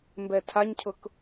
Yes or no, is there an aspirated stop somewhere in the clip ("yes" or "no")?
yes